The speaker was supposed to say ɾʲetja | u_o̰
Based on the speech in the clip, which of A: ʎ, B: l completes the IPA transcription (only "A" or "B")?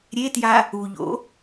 A